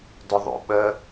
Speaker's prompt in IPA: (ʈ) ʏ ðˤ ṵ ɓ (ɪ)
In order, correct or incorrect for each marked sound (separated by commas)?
incorrect, incorrect